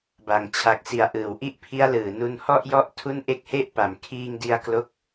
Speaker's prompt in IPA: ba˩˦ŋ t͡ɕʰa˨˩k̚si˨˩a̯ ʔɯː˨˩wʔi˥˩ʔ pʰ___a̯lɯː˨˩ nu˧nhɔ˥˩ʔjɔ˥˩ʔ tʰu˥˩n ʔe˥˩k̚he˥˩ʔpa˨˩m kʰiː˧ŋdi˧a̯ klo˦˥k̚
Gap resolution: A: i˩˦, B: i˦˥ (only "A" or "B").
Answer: B